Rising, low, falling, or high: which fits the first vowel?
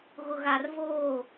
low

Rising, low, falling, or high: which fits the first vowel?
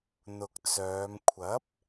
low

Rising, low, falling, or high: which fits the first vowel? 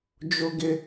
high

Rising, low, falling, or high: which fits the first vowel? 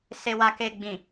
low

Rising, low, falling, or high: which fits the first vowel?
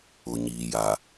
low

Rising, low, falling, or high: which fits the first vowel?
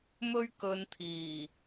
high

